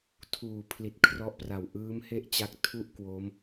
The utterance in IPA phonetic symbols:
tʰ uː˩˦ pʰ l i˨˩ t̚ kʰ r ɔ˦˥ ʔ p r a˨˩ w ʔ ɯː˦˥ m h e˥˩ ʔ t͡ɕ a˦˥ k̚ tʰ u˥˩ ʔ k w o˦˥ m

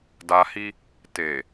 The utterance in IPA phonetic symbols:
d a˧ h i˦ | t e˨

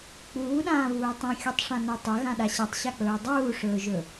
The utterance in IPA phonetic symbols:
k͡p uː ɗ ãː β uː tˤ ũ xʲ u tˤ ʂ ã n ɵ tˤ ɐ ɣ ã ɗ a ɕ a tˤ ɕ a k͡p ɵː dˤ uː ʂ ɵː ʒ ɵ

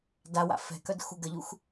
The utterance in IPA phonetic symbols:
d a w a̰ f ɛ̤ k œ d x u ɡ ə ʎ u x

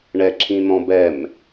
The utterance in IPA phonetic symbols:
ɳ ɛ ǁʰ ĩ n̪ ɔ̃ b ɛ m

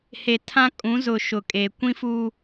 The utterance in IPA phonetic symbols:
h e˨ tʰ ã˦ kʼ ũ˨˦ z ʊ˨ ʃ ʊ˨ kʼ e˨ kʷ ĩ˦ f u˦

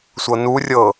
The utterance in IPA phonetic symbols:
sʷ ɤ n u rʲ ɤ

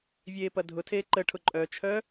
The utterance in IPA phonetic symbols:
vʲ eː p ɐ dʱ ʊ tʰ eː ǃ ə ʈʰ ʊ ǃʼ œ t͡ʃʰ œ

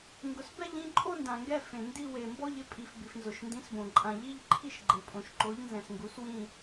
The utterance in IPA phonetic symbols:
ŋ ɡ ʊ˨ s b ɛ˥˧ ʎ ĩ˥˧ ǃʼ o˥˧ n d ã˨ ŋ ɡ ɛ˥˧ f ẽ˨ n d i˥˧ w e˨ m b ɔ˥˧ ʎ ɪ˥˧ pʼ i˨ f b i˨ f n z ʊ˨ ʃ n d ĩ˨˥ s b õ˨ ǃʼ ã˨ ʎ i˥˧ ʎ ǃʰ i˥˧ ʃ ɡ͡ǃ e˨ pʼ õ˨ ʃ ǃ o˨˥ ʎ n z ɛ̃˨ s ŋ ɡ u˨˥ s w ĩ˥˧

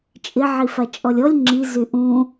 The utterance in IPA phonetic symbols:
t͡ʃʼ ɪ ʕ i f a t͡ʃʼ ɔ lʲ ɔ lʲ ŋ͡ǁ i z y ʔ ũ

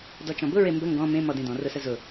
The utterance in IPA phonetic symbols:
d ɔ t͡ʃ ɔ̃ b ʊ ɹ e m b ə ŋ ɡ ɔ̃ m ẽ m ɔ d ẽ d ɔ̃ r ʊ s ə z ʊ

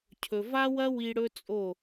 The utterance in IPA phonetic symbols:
cʰ ɵ˨ v a˦ w ɐ˦ w i˧ ɽ ɵ˦ t͡sʼ o˦˨

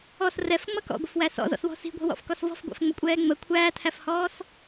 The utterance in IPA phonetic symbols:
ɔ s r ɛ f ŋ͡m ʌ k ɔ̰ ɡʷ ɪ f w æ s ɔ̰ z ɔ̰ s w ɔ̤ s i̤ ɡʷ ɛ̤ w ɔ̰ f k ɔ s v ɔ̤ f ɡʷ æ̰ f ŋ͡m ʊ kʷʼ ɛː ŋ͡m ə kʷʰ æː tʰ æ f h ɔː s

